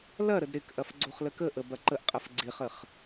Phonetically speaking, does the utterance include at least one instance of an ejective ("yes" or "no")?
yes